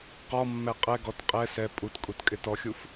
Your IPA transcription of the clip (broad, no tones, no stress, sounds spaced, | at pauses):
q ɔ mː ɛ qʼ ɛ ɡ ɔ t qʼ ɛ s ɛ pʼ u t kʼ u t kʼ ɪ t ɔ xʲ u f